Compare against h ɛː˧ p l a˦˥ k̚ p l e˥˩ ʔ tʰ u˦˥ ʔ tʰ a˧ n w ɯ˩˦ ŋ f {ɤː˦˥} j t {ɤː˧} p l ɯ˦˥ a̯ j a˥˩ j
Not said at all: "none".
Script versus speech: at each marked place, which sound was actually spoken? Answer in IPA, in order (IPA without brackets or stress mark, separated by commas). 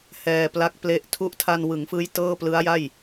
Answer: ɯː˦˥, ɤː˥˩